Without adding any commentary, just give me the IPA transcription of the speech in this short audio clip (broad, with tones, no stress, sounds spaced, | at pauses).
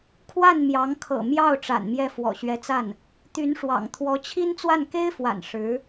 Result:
kʰ w a˥˩ n m j ɑ˧˥ ŋ kʰ ɤ̰˨˩ m j ɑ˥˩ ʊ̯ ʈ͡ʂ a̰˨˩ n m j ɛ˥˩ f w ɔ̰˨˩ ɕ ɥ ɛ˧˥ t͡s a˥˩ n | t̪ y˧˥ n ʂ w ɑ̰˨˩ ŋ t̪ʰ w ɔ˧˥ t͡ɕʰ i˥ n t͡s w a˥˩ n k e˥ ɪ̯ f w a̰˨˩ n ʂ ɻ̩˧˥